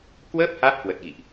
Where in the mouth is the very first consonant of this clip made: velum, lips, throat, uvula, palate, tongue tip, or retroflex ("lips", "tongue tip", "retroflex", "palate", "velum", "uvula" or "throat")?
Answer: velum